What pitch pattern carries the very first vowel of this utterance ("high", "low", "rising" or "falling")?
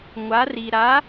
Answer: rising